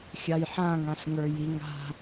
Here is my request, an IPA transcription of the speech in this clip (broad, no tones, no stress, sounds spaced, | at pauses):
xʲ a j ħ ã ŋ ã ɬ ŋ ə˞ j i ŋ a̤